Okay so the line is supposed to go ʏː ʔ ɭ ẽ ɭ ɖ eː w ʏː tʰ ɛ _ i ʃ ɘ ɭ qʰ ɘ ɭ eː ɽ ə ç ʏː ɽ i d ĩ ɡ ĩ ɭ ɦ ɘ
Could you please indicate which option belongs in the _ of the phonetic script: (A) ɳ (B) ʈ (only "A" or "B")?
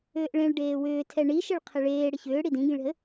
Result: A